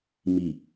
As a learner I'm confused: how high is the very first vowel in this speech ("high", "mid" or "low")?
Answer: high